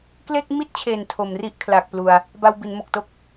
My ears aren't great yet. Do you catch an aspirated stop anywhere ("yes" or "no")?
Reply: yes